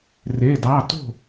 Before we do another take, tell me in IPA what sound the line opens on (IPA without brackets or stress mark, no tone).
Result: r